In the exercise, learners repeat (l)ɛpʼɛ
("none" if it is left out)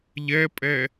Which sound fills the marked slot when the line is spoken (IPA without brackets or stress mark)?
ʎ